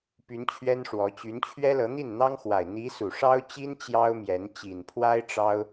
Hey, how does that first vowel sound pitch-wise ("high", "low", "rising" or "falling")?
rising